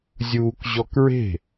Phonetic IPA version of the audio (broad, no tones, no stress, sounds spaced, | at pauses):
zʲ uː k ʑ ɔ k ɹ e̤